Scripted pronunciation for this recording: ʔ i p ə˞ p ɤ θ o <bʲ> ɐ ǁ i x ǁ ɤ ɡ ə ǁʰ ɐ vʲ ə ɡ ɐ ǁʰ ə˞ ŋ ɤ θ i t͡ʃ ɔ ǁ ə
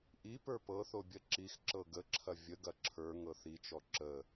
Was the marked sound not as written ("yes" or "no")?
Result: no